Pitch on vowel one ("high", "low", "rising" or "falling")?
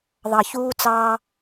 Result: low